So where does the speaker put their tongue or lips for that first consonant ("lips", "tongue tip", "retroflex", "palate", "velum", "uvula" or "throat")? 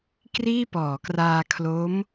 velum